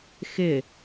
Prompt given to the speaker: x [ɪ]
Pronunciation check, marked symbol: correct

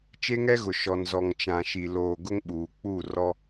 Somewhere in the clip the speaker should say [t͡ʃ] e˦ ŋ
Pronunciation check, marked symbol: correct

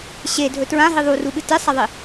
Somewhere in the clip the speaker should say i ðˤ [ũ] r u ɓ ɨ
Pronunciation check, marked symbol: incorrect: u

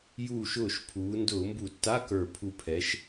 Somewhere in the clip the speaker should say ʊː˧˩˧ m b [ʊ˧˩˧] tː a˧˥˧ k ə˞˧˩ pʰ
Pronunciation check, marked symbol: incorrect: u˧˩˧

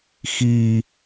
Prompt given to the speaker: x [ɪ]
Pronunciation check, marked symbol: incorrect: i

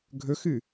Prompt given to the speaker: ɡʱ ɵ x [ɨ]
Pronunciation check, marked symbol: correct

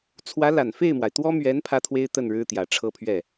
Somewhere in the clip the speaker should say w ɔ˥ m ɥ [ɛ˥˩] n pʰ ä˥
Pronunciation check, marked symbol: incorrect: ɛ˧˥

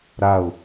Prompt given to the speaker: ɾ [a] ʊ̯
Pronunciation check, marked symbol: correct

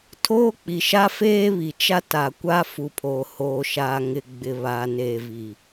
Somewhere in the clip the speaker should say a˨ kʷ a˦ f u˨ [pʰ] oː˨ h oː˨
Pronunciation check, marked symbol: correct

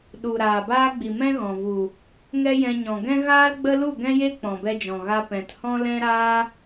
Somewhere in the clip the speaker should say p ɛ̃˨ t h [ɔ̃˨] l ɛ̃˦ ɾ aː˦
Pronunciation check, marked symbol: incorrect: ɔ̃˦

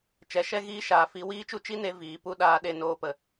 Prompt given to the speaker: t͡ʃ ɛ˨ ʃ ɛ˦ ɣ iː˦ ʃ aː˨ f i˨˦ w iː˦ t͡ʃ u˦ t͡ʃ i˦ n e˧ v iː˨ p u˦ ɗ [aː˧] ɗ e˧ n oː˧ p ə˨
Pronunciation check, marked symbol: correct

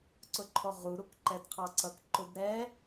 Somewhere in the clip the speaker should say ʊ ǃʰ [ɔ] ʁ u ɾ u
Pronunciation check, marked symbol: correct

